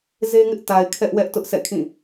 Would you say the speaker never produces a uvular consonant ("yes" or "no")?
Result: yes